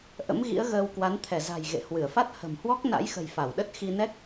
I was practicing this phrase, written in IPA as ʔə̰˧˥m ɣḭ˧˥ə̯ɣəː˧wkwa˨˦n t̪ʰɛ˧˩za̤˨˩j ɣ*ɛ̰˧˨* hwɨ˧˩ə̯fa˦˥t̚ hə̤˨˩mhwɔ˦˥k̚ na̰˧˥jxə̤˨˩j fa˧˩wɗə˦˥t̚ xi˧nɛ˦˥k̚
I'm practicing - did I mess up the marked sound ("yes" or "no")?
yes